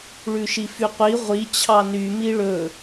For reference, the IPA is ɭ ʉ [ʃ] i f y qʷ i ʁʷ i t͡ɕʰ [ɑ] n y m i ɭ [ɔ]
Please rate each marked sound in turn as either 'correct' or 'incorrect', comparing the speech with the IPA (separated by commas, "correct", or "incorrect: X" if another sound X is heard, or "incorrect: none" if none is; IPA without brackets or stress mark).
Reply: correct, correct, incorrect: ɵ